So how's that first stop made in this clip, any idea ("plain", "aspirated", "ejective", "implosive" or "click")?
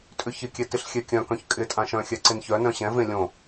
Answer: ejective